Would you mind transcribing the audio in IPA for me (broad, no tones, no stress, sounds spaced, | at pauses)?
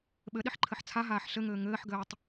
ɓ ɘ ɗ i ħ ǃʰ ɘ ħ t͡sʰ a ɦ aː ħ ɬ ɘ ŋ ɘː ŋ ɘː ħ ɡ ɘː tˤ